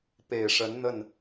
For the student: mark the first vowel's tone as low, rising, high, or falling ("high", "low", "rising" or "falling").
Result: low